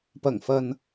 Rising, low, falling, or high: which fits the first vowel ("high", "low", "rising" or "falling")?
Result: low